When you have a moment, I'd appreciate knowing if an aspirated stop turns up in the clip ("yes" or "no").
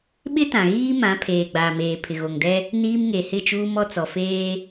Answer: yes